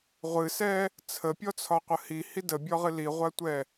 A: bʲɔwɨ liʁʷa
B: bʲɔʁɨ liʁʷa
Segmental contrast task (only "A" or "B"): B